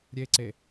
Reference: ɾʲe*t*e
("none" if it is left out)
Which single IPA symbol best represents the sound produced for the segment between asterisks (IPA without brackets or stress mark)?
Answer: ǀ